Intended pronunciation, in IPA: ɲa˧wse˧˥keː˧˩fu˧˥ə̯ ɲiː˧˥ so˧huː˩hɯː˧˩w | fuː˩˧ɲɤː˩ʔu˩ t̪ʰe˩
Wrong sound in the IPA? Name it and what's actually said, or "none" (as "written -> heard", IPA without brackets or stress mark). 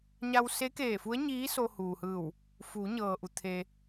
none